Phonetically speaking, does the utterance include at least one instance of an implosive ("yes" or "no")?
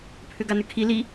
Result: no